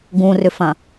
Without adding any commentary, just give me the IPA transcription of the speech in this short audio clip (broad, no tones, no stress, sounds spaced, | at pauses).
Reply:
ɡ ũ r ʏ f ɐ̃